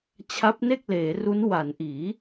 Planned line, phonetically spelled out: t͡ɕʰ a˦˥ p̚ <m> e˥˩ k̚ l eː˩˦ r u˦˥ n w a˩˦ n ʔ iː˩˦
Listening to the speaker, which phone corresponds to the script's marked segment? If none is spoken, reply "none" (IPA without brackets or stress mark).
n